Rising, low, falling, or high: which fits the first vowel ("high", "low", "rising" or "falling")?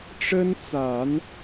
high